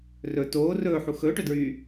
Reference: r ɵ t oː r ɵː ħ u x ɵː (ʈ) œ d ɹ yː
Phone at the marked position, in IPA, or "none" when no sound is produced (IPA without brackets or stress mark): ʈ